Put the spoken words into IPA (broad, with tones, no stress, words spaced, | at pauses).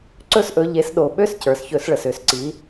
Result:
ǀɵ˦˥s ʔɵ˩˧ʎe˩˧sɗo˨˩ ɓø˦˥scə˞˨˩s çɵ˧˩˧sɭə˨˩sø˧˩˧sǀi˩˧